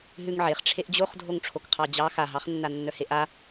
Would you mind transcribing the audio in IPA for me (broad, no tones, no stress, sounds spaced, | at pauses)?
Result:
ɦ ʉ ŋ ʕ e χ ʈ͡ʂʰ e ʔ d͡ʑ o χ dʱ o ŋ ʈ͡ʂʰ o k qʰ ɑ d͡ʑ ɑ x a ɦ ɑ χ nː a nː œ h e ʔ a